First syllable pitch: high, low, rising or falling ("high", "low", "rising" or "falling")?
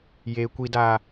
low